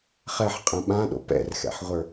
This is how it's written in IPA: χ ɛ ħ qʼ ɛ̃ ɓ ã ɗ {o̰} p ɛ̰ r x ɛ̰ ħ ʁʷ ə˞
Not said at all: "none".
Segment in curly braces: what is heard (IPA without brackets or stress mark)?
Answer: o̰